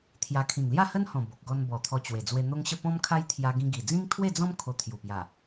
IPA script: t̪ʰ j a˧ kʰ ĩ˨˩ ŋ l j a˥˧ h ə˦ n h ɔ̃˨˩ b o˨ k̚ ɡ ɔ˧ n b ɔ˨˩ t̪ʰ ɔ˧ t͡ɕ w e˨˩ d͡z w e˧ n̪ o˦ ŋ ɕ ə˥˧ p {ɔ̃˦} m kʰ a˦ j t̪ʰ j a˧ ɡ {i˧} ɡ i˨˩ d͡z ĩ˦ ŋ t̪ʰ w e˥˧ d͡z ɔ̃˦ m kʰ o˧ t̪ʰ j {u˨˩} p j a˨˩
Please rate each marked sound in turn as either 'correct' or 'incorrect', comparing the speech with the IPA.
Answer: correct, incorrect: ĩ˧, correct

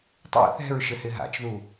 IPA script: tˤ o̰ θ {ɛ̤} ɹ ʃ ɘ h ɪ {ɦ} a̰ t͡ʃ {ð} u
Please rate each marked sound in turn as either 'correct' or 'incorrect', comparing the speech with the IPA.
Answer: correct, correct, correct

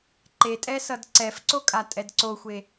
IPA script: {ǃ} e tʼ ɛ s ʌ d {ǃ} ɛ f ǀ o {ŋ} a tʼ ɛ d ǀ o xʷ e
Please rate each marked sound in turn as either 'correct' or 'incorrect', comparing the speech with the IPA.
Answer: correct, incorrect: ǀ, incorrect: kʼ

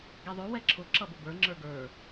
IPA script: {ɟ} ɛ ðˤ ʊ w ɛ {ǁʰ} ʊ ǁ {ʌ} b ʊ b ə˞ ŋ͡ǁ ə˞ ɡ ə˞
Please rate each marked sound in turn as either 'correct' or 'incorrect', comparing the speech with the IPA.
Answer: incorrect: ɡ, correct, correct

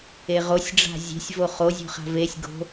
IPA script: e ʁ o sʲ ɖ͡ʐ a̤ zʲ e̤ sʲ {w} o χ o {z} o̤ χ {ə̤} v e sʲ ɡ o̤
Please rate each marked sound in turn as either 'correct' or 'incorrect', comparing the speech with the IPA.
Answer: incorrect: v, incorrect: zʲ, incorrect: a̤

